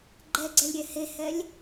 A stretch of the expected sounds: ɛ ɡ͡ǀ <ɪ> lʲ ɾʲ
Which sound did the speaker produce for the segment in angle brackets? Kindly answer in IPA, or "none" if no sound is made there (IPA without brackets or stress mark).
ɛ